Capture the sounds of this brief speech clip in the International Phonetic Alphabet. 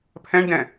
pʰ ɛ̃ ɳ d ɛ̃

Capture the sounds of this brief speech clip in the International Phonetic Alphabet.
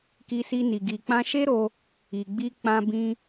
k i˧ s i˧ n i˨ ɡ i˨ k͡p ã˧ ʃ e˦ ɾ o˧ | i˨ ɡ͡b i˧ k͡p ã˧ b ĩ˧

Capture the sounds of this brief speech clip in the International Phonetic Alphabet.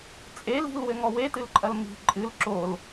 t͡sʼ e l i̤ l w ɘ ŋ ɔ w e t ɨ l ǃʼ ɐ l m i̤ ǃʼ ɨ l ǁ o l

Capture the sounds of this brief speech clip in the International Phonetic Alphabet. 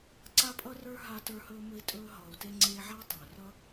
ǀ a˦ pʼ ʌ˦ r ə˞˦ ɦ a˧ t ə˞˧ h ɵː˧ m ɵ˧ i̯ tʼ ɵː˧ ɦ ʌː˨ u̯ t e˧ ŋ͡ǀ eː˧ ʕ a˦ i̯ tˤ ɵː˨ r ʌ˦

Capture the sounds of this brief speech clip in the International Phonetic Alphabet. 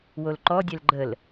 w o l ǃ ɔ dʲ ɛ l ɡ͡ǃ ə l

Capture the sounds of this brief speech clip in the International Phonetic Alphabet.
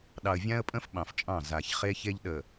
ɗ ɑ˨ ə̯ vʲ ã˦ ə̯ pʼ ə̃˦ f ɓ ɑ̃˨ f t͡ʃʼ ɑ̃˦˨ z a˨ ç χ e˦ ç e˦ ʎ ɗ ə˨

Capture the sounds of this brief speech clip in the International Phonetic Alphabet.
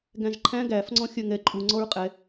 ɡ æ̃ ʒ ǃʰ æ̃ ɡ æ f ŋ͡ǀ ɔ̃ xʲ œ ŋ ɛ ǃʼ u ŋ͡ǀ ɔ ɹ qʼ ɛ

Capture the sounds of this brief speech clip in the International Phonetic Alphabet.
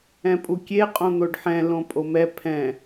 ɛ̃ pʼ u kʲ e qʼ õ n̪ o ɖ ħ ɛ̃ l õ pʼ o m ɛ pʰ ɛ̃

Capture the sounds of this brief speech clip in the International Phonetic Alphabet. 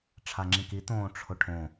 ʈ͡ʂʰ a ŋ͡ǁ ĩ k i t̪ õː ʈ͡ʂʰ ʊ ʈʰ õ

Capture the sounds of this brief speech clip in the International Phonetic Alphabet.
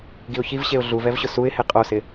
ɡ i ʊ̯ ç i v ɕ e ʊ̯ ɮ u v ɛ v ɕ ʊ s u ɪ̯ h e qʼ o s ɪ

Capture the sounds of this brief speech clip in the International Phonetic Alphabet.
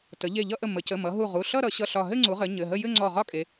t ə˩˧ ʎ e˧˩ ʎ ʌ˥˧ ʔ ə˧˩ m ə˩˧ c ə˩˧˩ m ʌ˩˧ ɦ u˧˩ ʁ u˩˧˩ ɬ ʌ˥˧ ɾ ʌ˩˧ ɕ ʌ˧˩ ɬ ɒ˧˩ ɦ ɘ˥˧ ŋ͡ǀ u˩˧ ʁ ɘ˩˧ ɲ ɘ˩˧˩ ɦ ə˥˧ j ɘ˥˧ ŋ͡ǀ ɔ˧˩ ʁ ɒ˥˧ kʼ e˩˧

